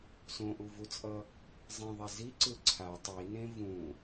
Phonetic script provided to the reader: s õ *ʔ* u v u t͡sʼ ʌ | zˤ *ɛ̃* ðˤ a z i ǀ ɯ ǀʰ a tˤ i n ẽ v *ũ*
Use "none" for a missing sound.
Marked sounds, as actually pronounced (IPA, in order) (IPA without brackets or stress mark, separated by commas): ʔ, ẽ, ũ